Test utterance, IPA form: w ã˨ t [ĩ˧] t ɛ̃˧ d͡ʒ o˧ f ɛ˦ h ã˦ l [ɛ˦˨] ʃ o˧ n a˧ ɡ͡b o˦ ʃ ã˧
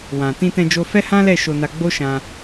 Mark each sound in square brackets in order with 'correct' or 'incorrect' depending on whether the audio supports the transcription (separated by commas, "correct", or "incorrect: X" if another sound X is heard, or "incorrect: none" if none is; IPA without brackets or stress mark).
correct, correct